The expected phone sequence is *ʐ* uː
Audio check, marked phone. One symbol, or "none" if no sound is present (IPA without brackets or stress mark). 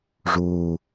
ʐ